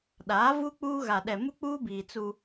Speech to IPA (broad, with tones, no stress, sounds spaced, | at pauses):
ɗ aː˨˦ v u˦ k͡p uː˦ ɣ a˨ ɗ ɛ˨ m u˦ k͡p uː˦ b iː˨ t͡s u˦